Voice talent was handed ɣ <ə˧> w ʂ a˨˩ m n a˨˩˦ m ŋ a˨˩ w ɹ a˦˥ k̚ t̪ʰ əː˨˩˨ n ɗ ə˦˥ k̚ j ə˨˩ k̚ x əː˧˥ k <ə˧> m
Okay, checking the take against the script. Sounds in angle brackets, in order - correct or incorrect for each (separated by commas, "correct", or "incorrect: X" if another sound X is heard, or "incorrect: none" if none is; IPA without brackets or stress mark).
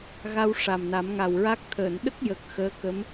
incorrect: a˧, incorrect: ə˧˥